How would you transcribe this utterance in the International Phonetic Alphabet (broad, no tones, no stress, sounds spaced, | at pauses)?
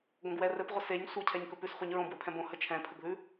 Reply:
ɡ õ ɡ w ɛ r ɘ p ʁʷ ɘ s e ɲ sʷ e cʰ ɛ ɲ k ɵ p ʉ s χʷ ə ɲ ɹ õ b w ɘ pʰ ɛ̃ b õ h ə t͡ʃʰ ɛ̃ pʰ ə ɡ ð ʉ